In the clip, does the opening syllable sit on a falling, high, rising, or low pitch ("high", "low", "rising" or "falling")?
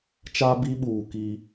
high